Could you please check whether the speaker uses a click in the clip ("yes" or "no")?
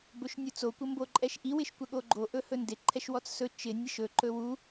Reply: yes